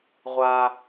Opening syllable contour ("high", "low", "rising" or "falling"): high